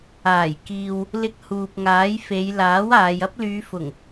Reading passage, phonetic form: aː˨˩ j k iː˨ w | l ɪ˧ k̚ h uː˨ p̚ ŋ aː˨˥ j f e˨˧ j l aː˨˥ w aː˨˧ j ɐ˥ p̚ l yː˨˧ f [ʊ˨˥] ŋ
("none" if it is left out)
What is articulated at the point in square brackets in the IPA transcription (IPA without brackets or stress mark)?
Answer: ʊ˨˩